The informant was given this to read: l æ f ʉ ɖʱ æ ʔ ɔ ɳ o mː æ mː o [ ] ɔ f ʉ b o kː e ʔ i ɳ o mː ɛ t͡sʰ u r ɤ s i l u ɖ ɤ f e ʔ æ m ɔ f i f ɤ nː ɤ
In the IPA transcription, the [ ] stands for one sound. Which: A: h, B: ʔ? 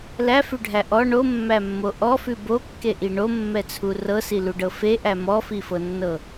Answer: B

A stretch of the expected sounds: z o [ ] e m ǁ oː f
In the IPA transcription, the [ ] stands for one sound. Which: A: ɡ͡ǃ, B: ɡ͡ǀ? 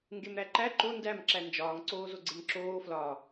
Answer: B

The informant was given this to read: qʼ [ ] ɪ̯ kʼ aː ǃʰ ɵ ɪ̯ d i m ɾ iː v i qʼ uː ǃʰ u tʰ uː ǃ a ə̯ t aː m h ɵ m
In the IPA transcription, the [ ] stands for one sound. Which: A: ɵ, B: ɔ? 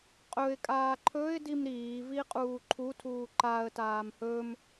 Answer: A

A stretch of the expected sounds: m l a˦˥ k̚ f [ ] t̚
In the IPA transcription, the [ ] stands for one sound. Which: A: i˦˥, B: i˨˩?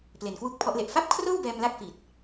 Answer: B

